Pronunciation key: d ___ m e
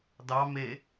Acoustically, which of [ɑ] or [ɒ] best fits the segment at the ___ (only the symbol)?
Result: ɑ